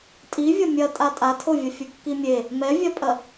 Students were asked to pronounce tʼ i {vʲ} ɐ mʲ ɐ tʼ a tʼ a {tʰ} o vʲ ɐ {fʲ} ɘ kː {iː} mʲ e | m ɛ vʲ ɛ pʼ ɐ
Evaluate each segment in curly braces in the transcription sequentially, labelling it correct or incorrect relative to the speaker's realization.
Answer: correct, correct, correct, incorrect

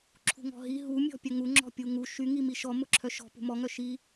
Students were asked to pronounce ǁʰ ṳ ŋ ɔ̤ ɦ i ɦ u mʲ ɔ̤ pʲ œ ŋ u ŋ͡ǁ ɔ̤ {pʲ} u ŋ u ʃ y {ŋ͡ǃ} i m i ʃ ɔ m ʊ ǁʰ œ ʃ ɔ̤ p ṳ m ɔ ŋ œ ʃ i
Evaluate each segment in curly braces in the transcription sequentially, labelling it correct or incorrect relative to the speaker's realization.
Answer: correct, incorrect

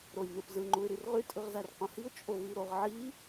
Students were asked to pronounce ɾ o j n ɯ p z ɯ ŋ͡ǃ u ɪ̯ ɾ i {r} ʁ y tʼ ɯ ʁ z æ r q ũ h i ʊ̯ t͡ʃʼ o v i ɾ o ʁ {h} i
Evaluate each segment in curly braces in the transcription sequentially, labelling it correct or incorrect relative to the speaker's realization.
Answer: correct, incorrect

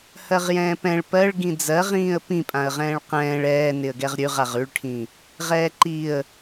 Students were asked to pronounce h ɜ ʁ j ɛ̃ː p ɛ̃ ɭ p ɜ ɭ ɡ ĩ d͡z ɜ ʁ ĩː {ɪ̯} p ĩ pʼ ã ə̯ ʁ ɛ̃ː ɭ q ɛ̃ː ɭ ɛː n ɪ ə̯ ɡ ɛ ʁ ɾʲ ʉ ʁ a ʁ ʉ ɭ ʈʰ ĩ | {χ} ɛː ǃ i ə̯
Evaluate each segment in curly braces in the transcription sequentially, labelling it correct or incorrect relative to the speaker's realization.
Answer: incorrect, incorrect

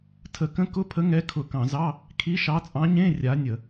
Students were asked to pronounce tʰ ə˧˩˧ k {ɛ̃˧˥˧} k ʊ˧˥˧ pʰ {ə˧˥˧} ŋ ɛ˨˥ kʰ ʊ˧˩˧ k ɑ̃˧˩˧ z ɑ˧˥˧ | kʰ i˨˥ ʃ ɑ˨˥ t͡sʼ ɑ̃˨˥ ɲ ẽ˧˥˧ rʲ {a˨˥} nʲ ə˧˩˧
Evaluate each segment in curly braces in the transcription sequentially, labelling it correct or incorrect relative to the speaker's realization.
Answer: incorrect, incorrect, correct

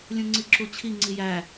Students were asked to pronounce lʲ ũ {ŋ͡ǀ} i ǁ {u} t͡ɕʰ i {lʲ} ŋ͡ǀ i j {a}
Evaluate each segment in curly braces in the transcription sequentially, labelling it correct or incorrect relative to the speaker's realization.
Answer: correct, correct, incorrect, incorrect

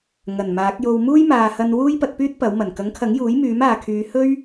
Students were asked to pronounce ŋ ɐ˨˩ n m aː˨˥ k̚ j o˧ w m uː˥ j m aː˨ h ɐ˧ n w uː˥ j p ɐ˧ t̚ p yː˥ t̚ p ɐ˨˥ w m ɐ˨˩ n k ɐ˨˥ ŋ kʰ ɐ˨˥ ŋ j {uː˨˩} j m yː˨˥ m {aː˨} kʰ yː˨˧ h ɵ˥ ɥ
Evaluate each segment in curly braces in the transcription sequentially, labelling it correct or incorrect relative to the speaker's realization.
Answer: incorrect, correct

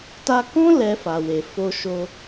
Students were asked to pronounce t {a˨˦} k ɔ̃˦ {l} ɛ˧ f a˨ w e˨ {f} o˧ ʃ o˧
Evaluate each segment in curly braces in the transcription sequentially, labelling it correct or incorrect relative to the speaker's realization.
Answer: incorrect, correct, correct

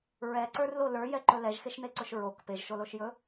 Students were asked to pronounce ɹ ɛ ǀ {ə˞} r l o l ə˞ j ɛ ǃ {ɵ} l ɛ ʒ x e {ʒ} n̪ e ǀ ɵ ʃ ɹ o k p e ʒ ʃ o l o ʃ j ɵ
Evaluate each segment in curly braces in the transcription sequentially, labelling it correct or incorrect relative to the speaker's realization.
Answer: correct, correct, incorrect

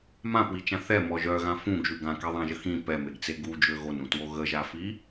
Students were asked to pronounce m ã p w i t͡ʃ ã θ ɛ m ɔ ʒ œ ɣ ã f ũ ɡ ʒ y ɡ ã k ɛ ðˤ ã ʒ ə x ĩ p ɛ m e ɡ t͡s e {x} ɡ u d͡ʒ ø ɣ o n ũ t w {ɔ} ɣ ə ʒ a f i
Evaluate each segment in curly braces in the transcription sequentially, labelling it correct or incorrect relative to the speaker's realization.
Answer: incorrect, incorrect

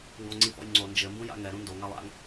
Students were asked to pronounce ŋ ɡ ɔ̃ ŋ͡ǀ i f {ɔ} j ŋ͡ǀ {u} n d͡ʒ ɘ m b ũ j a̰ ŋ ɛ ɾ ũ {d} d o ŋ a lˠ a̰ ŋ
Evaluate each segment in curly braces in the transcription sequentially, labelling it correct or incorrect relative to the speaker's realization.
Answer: incorrect, incorrect, incorrect

